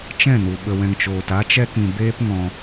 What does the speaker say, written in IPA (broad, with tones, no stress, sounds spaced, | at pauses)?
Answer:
t͡ʃ ɛ̃˦˨ n u˨ ɓ ə˨ w ɛ̃˨ ŋ t͡ʃ oː˨ t a˧ t͡ʃ ɛ˧ k ĩ˨ b eː˦ p ŋ ɔ̃˧